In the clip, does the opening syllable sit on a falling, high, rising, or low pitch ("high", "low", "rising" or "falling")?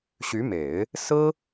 rising